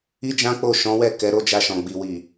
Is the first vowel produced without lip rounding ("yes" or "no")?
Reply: yes